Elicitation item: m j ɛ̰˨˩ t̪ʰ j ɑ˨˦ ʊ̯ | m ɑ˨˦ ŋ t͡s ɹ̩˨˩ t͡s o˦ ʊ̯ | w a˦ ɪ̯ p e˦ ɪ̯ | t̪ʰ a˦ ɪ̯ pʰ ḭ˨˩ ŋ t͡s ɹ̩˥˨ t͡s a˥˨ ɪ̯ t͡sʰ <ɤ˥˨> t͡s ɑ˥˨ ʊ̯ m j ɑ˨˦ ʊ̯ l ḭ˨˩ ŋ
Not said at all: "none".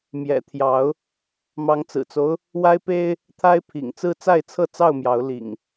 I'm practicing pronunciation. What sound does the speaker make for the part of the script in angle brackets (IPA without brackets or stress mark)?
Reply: ɤ˥˨